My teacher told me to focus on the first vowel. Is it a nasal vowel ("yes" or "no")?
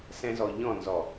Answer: yes